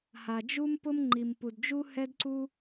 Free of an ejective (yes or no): yes